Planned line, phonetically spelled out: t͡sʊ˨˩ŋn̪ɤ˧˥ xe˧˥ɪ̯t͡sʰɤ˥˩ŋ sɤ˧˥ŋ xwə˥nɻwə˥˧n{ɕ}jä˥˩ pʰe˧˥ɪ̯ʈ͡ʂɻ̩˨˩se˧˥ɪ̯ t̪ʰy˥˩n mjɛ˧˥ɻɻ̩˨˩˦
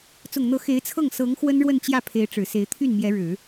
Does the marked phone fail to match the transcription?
yes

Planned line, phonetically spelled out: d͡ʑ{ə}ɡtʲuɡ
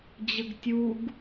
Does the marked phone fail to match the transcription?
no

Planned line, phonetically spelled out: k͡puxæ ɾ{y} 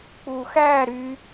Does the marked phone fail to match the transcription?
no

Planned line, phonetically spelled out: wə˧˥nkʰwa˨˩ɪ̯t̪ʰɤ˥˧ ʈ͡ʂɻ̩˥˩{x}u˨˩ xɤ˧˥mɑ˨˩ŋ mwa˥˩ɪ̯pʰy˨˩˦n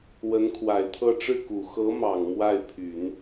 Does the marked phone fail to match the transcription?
yes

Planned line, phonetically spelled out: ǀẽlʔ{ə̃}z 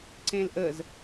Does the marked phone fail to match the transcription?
yes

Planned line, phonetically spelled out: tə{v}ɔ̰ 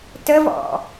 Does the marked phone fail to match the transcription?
no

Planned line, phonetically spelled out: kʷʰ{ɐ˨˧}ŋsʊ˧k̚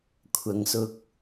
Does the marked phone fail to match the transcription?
no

